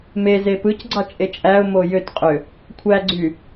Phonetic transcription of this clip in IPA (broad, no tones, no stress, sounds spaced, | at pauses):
m e z e p ɯ c ɡ͡ǀ ɑ t͡ʃʼ e t͡ʃʼ æ ʊ̯ m o j ø t qʼ ø | kʷʰ æ ɡ͡ǀ y